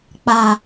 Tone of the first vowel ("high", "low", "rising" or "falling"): low